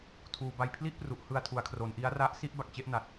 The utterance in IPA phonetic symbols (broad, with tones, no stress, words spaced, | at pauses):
tʰuː˨˩ba˧j pʰli˥˩ʔpru˨˩ʔ hɯ˧a̯tʰu˩˦a̯kʰro˩˦nʔi˦˥a̯ ra˦˥ʔ si˥˩ʔba˨˩k̚t͡ɕe˥˩ʔna˨˩t̚